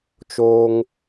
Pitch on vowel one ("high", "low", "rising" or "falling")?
high